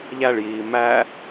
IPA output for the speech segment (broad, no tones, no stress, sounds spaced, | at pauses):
ʎ æ ɭ j iː m æ